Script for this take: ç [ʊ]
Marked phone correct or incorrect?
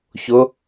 correct